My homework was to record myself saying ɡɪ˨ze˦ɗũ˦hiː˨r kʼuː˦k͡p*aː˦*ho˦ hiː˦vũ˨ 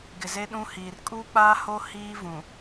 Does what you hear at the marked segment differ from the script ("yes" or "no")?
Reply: no